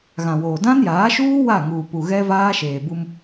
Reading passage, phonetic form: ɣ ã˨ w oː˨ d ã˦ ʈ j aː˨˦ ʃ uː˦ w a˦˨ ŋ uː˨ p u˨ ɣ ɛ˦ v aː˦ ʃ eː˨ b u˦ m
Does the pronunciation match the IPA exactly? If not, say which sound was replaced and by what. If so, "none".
ʈ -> n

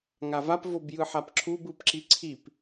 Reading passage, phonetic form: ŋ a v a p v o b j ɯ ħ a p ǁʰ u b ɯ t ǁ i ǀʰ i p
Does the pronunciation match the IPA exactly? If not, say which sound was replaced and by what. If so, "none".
t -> p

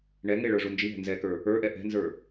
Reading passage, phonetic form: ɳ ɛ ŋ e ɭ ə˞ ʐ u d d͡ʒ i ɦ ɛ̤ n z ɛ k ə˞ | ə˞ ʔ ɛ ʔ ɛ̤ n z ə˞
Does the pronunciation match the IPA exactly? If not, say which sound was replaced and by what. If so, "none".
d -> n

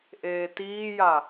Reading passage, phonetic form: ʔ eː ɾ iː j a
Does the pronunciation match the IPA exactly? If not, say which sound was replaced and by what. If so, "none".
ɾ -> t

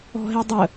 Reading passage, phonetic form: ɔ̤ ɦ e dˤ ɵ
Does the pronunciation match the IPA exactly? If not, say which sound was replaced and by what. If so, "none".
ɵ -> ə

